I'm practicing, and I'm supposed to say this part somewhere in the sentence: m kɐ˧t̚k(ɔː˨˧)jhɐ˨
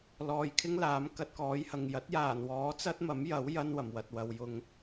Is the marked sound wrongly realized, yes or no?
yes